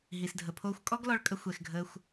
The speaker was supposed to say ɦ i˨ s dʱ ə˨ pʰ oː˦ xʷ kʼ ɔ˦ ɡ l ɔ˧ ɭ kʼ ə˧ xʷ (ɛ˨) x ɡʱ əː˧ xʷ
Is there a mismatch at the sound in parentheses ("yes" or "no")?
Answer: no